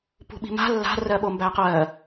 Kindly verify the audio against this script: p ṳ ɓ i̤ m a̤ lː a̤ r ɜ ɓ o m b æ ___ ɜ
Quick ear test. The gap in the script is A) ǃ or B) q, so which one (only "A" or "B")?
B